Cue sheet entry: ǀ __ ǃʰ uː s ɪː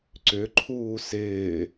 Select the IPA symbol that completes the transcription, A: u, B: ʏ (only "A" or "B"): B